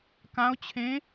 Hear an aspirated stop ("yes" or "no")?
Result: yes